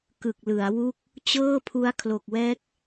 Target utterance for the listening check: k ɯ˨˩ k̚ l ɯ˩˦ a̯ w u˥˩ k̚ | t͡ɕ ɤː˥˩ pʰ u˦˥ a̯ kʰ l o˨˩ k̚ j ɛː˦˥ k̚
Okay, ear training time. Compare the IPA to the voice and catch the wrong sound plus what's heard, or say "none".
j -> w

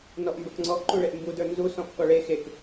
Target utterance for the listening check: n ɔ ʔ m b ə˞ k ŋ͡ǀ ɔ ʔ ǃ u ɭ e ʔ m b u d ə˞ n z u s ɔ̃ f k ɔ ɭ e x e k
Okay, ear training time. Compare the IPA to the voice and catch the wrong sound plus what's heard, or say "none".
none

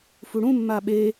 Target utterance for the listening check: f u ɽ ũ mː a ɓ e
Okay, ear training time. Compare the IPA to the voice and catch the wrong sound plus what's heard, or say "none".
none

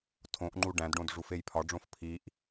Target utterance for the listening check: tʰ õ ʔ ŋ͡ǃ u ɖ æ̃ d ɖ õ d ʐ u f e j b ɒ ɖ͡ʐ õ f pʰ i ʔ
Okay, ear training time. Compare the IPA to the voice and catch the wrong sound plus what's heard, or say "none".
b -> pʰ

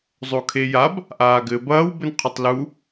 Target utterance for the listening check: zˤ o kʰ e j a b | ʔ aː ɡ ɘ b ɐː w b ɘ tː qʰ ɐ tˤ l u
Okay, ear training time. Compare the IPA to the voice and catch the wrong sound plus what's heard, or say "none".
tː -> n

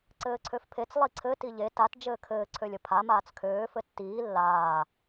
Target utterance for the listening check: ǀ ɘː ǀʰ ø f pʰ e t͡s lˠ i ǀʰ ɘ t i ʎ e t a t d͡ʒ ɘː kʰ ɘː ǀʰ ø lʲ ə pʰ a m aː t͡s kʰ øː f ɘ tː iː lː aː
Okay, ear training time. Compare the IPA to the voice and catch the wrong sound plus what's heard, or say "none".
none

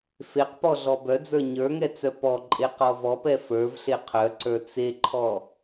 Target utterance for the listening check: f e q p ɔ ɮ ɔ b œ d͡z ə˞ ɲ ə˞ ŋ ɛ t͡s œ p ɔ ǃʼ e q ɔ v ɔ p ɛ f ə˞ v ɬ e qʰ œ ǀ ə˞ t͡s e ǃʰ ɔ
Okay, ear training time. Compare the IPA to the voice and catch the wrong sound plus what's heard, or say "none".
none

